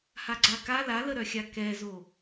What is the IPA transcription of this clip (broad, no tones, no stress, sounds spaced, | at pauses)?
h a ɡ͡ǀ a k a l a l ə ɾ œ xʲ a k ɛ z o